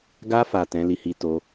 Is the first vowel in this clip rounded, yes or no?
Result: no